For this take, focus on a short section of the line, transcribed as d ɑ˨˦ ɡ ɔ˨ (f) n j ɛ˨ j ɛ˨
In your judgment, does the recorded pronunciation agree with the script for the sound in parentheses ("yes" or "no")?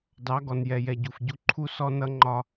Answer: no